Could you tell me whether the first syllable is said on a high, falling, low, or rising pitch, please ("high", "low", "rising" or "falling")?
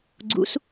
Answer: rising